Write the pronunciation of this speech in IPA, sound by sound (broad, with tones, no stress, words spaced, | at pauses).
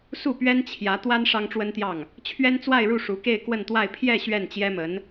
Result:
su˥˩pɥɛ˥nt͡ɕʰjä˧˥ t̪wa˥n ʂɑ˥ŋʈ͡ʂwə˥nt̪jɑ˥˩ŋ | t͡ɕʰɥɛ˥nt͡swa˥˧ɪ̯ɻu˥˩ ʂu˧˥ke˥˧ɪ̯kwə˥˧nt̪wa˥˧ɪ̯ pʰjɛ˥˧ ɕɥɛ˥˩nt͡ɕjɛ˥mə˧˥n